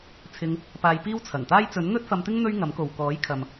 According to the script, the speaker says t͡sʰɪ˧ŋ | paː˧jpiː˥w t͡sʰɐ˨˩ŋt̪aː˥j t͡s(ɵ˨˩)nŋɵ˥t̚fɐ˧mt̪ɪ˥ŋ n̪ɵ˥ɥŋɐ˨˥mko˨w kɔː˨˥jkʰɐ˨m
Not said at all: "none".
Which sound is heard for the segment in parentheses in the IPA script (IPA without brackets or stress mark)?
ɵ˨˥